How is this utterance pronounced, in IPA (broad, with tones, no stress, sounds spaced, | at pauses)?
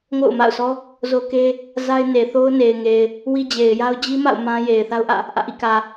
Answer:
ŋ o̰˦˨ ʊ̯ m a̰˦˨ ʊ̯ sʰ ɔ˦ | z o˦ k e˦ | z a˦ ɪ̯ n e˨ θ o˦ ʊ̯ n e˨ ɪ̯ ŋ e˨ ɪ̯ | w i˦ d͡ʑ e˨ ɪ̯ j a˦ ʊ̯ d͡ʑ i˦ m a̰˦˨ ʊ̯ m ã˦ j e˨ ɪ̯ θ a˦ ʊ̯ ʔ ä̰˦˨ | ʔ ä̰˦˨ ʔ ḭ˦˨ k ä˨